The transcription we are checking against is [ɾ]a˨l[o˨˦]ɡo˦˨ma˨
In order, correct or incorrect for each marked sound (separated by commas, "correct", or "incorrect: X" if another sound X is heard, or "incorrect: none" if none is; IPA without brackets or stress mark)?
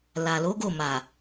incorrect: l, correct